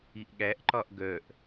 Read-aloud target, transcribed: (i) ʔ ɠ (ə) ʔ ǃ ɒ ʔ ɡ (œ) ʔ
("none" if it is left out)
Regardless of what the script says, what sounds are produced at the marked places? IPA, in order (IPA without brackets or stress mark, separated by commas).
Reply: i, æ, œ